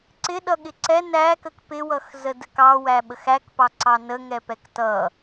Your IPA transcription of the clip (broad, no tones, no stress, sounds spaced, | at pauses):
ǀ ɪ ɗ ʌ ɠ ɪ ǀ ɛ n æ k ə k p ɪ w ʌ x z ə d ə k ɑ w æ ɓ ə x æ k p ɑ ǀ ɑ n ə ŋ ɛ p ɛ k t ʌ